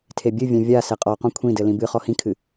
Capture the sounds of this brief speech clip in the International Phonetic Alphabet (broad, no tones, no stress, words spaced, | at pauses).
tʰebʲɨvʲɛ̃ vʲasɛ qʼɔqɔ̃ kʷʰĩdɘ lĩbɨχɔ hĩkʰɨ